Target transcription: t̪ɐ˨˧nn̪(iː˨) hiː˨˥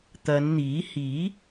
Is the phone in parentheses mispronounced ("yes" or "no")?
yes